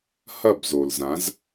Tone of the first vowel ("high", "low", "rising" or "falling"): falling